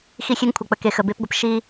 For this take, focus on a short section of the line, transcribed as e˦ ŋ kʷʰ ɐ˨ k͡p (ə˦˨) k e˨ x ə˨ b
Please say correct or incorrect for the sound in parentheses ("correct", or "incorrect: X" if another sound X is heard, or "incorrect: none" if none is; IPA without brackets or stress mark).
incorrect: ə˨